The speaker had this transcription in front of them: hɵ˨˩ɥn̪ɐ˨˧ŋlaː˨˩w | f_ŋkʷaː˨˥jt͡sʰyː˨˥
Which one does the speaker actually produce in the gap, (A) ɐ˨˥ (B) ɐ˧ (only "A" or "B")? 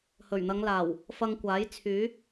B